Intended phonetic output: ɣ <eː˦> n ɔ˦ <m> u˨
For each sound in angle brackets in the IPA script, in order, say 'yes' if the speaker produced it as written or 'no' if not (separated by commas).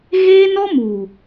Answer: yes, yes